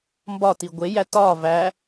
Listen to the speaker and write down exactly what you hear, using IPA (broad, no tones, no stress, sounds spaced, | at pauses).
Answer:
m b ɒ t i ɡʷ e j æ t ɒ v æ